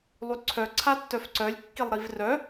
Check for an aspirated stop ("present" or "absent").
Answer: present